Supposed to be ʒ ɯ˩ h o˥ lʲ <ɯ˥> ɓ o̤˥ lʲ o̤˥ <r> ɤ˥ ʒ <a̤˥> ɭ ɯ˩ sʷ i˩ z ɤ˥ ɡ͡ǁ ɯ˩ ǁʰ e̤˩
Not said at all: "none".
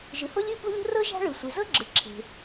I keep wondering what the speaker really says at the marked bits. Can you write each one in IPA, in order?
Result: ɯ˥, r, a̤˥

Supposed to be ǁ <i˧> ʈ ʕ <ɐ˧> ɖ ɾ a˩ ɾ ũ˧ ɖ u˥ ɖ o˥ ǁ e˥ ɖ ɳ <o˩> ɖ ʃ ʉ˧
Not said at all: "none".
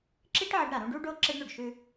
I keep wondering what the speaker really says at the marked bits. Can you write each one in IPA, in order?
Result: i˥, ɐ˧, o˩

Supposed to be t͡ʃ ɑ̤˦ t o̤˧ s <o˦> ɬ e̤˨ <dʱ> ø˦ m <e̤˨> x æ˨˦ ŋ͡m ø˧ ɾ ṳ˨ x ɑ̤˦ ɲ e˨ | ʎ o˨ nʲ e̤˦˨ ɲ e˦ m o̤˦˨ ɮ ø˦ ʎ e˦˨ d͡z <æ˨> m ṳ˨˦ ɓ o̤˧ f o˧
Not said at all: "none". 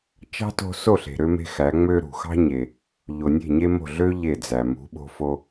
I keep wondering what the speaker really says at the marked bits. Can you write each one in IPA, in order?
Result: o˦˨, ɾ, e̤˦, æ˨

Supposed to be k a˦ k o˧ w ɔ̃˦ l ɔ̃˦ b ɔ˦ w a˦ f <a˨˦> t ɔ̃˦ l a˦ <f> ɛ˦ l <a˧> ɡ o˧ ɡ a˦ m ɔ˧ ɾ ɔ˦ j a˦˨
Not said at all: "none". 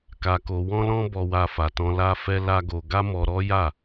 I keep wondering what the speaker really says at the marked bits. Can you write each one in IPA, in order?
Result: a˧, f, a˦

